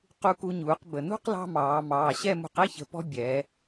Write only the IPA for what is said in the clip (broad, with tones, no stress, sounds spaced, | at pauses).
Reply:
q u˧ k u˧ ɲ uː˩˧ q b ə˩ n ṳ˥˧ q l ɑ̤˧ m ɑː˩˧ m ɑː˩˧˩ ɕ ɛ˥˧ m ṳ˧ q ɛ˥˧ ç ə̤˩˧ p ɔ̤˧ bʲ ɛː˩˧